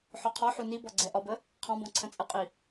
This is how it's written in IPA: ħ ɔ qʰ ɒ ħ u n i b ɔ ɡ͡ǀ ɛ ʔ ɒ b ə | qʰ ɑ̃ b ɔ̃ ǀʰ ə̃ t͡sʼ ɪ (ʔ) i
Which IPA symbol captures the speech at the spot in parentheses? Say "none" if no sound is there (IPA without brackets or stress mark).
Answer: qʼ